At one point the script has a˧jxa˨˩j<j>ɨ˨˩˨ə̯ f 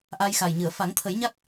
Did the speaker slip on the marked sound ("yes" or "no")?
yes